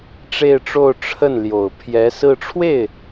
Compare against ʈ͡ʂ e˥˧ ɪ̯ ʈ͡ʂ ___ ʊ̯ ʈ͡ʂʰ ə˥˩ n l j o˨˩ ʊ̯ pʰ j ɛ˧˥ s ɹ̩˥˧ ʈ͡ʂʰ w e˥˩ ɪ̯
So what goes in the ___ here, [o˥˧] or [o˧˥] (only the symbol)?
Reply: o˥˧